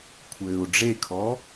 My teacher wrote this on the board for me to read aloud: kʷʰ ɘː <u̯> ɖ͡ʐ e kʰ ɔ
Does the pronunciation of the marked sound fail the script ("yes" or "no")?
no